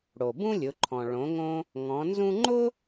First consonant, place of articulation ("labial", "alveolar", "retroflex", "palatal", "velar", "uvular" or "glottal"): retroflex